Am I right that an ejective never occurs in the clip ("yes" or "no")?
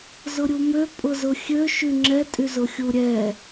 no